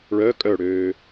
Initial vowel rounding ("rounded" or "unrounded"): rounded